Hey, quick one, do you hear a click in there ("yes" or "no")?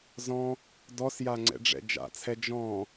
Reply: yes